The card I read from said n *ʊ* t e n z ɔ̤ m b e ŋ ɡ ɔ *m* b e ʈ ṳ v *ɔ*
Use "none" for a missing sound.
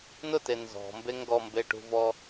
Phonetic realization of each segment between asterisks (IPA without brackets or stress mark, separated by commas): ʊ, m, ɔ